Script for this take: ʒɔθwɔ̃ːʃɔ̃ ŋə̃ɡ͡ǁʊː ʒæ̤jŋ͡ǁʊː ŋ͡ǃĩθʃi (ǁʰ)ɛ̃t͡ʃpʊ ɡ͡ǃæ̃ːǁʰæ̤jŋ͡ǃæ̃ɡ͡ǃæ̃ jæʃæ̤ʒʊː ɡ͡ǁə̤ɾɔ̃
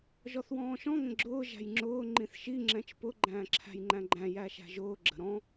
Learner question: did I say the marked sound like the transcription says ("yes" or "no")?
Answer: no